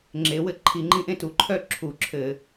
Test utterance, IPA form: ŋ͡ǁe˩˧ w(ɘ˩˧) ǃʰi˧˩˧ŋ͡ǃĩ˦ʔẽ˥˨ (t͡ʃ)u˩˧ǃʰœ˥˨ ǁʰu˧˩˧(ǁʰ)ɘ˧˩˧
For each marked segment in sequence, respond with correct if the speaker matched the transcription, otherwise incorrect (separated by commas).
incorrect, incorrect, correct